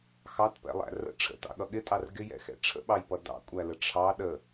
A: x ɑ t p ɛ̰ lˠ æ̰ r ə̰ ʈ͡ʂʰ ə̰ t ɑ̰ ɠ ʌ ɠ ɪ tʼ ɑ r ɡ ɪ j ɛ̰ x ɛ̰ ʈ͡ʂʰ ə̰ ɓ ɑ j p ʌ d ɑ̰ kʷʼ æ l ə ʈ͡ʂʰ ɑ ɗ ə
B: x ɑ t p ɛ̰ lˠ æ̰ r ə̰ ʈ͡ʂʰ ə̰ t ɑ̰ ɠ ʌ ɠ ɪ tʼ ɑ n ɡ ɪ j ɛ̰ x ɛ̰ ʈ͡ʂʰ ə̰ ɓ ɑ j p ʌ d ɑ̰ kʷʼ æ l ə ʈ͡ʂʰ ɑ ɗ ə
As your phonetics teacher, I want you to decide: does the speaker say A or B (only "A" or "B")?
A